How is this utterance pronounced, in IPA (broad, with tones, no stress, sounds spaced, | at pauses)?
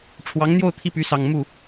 ʈ͡ʂʰ w ɑ˧˥ ŋ n̪ j o˥˧ ʊ̯ t̪ʰ i˥˩ p y˧˥ s ɑ˨˩ ŋ m u˥˩